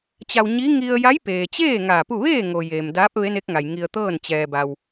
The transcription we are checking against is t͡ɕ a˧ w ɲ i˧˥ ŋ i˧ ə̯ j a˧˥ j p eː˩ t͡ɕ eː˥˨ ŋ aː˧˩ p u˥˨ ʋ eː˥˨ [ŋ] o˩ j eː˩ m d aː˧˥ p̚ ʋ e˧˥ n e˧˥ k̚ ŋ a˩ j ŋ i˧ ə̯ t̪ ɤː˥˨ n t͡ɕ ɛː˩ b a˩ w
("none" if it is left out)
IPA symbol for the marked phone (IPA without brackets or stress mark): ŋ